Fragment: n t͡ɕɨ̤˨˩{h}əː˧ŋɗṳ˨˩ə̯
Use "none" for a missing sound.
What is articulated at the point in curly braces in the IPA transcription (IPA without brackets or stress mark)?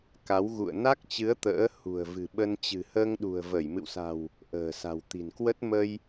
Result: h